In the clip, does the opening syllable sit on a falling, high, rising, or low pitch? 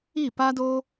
falling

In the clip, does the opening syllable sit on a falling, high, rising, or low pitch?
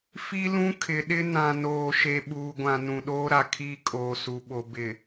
high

